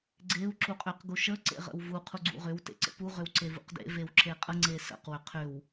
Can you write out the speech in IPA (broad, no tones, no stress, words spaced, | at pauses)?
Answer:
ɡ͡ǀeu̯ ǁuqʼʏq ɡuʃə ǀḛʁə̰wvu qʰuɡ͡ǀṵʁʏw tḛǀə̰pu ʁʏwǀevṵqdḛ vewǁeqʼə ŋ͡ǀesə̰q wʏqʰʏw